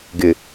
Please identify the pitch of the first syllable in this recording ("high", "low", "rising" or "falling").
low